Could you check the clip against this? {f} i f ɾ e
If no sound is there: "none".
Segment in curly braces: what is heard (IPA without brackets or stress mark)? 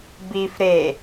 b